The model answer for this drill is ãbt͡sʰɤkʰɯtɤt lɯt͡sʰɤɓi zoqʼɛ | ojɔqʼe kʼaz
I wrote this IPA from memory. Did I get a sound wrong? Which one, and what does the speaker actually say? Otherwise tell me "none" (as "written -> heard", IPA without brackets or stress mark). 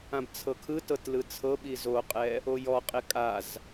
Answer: none